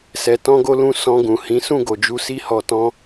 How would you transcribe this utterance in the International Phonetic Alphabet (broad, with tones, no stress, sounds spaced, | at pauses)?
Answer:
s ɛ˨ t ɔ̃˧ ɡ o˧ l ũ˧ s ɔ̃˧ ɡ ũ˨ h ĩ˨˦ s ũ˦˨ ɡ o˨ d͡ʒ u˧ s i˦ h ɔ˧ t ɔ̃˦